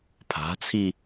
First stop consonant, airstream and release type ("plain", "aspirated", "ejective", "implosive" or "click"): aspirated